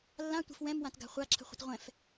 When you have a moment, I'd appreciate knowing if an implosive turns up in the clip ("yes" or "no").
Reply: no